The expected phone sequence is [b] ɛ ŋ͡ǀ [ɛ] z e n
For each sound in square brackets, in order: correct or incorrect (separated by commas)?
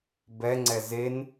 correct, correct